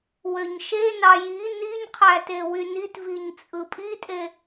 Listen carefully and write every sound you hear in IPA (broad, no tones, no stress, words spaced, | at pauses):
wøɲʃenɑ ji niɲqʰæ tewynitviɲ t͡sʼɯpʼitʼe